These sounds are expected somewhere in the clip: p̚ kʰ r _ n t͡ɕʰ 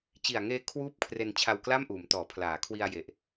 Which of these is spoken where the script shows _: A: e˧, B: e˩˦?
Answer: A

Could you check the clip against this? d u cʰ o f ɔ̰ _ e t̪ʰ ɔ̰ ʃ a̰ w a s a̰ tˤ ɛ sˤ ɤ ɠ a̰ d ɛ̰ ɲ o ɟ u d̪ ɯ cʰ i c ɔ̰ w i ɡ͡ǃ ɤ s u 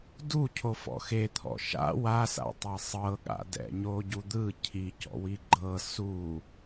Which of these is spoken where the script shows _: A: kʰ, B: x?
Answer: B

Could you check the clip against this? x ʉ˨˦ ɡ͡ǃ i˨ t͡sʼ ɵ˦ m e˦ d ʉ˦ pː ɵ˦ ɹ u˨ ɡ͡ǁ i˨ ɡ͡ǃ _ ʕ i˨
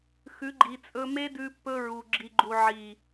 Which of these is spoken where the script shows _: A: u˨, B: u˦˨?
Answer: A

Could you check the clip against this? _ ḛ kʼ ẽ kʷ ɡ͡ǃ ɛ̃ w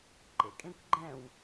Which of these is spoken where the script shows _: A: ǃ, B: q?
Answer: A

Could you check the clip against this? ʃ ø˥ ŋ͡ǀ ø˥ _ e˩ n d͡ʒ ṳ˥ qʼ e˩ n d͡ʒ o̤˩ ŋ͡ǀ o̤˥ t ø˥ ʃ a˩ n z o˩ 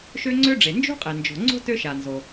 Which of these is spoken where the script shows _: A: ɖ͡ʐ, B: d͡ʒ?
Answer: A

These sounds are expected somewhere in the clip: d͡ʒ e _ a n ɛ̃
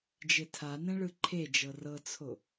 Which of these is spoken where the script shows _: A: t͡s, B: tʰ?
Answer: B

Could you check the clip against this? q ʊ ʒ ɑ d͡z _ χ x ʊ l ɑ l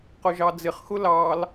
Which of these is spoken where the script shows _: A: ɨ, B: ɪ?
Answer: B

